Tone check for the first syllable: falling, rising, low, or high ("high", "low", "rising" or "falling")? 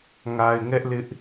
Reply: low